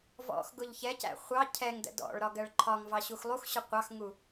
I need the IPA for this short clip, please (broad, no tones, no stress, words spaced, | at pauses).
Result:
vɔ̰x ɡʊʎçɛcæ̰ χʷɑ cʰɛŋdə̰ dɔ̰ɭɾɒ ɡɜɭǃʰɒŋvɑ ɕuxlˠuxɕʊ qʷɑxŋu